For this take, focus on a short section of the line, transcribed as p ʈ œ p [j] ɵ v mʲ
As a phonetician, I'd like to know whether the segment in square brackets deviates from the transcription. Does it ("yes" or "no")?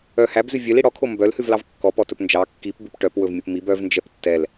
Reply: yes